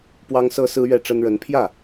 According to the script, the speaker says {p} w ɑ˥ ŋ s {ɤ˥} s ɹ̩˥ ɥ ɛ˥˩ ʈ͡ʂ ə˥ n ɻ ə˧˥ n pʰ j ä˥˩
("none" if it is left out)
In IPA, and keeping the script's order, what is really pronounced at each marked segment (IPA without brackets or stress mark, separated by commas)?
p, ɤ˥